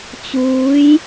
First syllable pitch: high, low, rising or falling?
rising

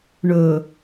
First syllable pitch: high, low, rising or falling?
low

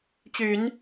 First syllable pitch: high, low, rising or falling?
low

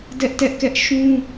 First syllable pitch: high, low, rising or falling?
high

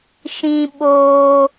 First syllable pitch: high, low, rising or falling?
high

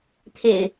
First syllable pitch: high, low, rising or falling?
low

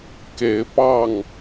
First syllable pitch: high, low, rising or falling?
rising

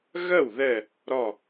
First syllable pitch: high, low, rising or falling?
falling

